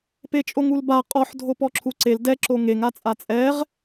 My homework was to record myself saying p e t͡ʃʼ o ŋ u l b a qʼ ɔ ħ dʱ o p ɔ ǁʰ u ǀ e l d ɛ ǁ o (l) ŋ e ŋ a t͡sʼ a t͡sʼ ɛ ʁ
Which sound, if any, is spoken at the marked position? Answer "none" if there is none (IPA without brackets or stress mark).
none